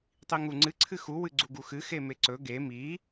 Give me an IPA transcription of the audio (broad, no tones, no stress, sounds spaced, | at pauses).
tˤ i ŋ u ŋ͡ǀ ɨ ǀʰ ɨ x u w ɨ ɡ͡ǀ u ɡ u x ɨ x e m e ǀ ɵ ɡ e m i